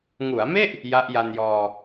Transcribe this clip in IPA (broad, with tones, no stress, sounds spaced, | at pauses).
ŋ u˩˦ a̯ m e˥˩ ʔ | j a˦˥ ʔ j a˧ n j ɔː˧